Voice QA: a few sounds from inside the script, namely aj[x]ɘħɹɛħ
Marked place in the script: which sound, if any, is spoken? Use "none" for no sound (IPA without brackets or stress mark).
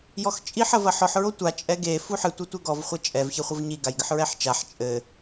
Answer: ɡ